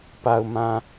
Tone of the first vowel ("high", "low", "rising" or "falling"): low